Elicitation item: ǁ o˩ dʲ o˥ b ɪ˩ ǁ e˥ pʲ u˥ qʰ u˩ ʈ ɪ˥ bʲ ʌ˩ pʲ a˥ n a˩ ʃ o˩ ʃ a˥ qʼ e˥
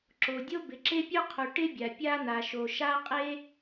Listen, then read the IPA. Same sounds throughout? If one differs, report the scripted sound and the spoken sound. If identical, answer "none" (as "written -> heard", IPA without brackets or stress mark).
ʌ˩ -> a˩